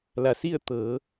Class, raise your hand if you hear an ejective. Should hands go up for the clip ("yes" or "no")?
no